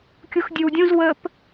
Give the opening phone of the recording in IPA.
kʲ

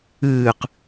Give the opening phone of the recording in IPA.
ɨː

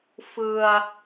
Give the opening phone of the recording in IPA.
f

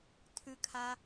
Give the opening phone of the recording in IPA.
tʰ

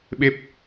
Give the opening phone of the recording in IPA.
ɓ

